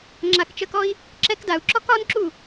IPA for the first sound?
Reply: ŋ͡ǁ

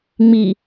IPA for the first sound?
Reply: ŋ͡m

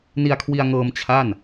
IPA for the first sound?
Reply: n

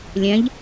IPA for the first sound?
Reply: lʲ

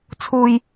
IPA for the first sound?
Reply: t͡sʰ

